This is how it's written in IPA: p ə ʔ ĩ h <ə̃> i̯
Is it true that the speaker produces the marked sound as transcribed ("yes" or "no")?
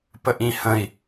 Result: yes